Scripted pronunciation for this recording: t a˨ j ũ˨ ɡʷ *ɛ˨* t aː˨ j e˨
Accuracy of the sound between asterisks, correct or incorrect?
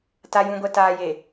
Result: correct